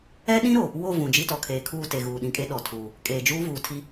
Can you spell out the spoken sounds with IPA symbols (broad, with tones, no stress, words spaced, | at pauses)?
ɛ˦ɗĩ˦ɾo˨ | wo˦˨vũ˨ d͡ʒi˦tɔ˨kʰeː˨kʰuː˦˨ te˨ɣuː˨ ɗĩ˨kʼe˦ ɗɔ˨tʰuː˨ | kʼeː˨d͡ʒuː˦vuː˨tʰi˦